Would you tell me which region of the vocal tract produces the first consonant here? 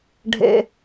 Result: retroflex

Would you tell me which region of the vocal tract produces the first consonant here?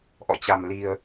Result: throat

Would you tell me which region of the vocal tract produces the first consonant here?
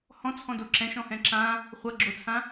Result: throat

